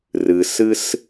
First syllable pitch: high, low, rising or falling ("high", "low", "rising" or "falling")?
low